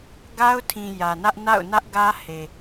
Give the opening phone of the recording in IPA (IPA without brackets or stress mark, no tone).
ɡ